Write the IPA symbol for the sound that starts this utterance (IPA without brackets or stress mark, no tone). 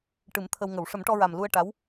ʈ